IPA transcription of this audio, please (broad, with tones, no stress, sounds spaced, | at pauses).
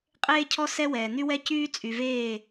qʼ eː˦ cʰ ɔ˦ s ɛ˦ w ɛː˨ n̪ y˦ w ɛ˦ c yː˦ t͡sʼ y˨ v eː˦˨